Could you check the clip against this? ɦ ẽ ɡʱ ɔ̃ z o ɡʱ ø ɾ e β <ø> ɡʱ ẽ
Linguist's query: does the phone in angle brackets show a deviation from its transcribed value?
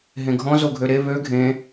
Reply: no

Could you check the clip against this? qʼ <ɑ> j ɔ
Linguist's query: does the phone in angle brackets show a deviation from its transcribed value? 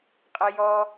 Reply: yes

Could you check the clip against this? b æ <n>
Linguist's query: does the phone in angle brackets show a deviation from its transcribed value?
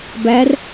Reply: yes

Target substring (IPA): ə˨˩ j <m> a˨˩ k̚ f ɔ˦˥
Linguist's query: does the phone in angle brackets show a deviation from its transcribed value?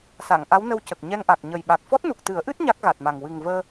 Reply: yes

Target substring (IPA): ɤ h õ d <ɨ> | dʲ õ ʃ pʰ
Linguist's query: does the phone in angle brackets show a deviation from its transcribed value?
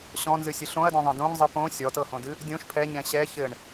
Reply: no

